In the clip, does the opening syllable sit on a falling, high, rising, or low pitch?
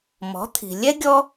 rising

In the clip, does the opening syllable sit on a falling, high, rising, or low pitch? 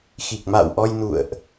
low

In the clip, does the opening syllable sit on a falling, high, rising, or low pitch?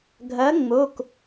rising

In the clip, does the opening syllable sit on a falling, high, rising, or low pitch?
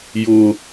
high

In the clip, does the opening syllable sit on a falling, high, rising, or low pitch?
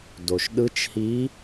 low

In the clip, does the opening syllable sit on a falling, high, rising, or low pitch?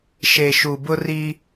low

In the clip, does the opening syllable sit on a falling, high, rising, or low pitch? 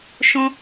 high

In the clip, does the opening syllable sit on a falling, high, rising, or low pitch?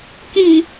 low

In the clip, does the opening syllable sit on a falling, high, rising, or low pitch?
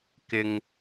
low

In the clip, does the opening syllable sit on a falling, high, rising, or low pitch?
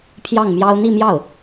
falling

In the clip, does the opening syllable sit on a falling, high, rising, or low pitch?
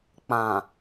low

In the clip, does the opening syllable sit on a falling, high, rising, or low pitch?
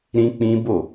high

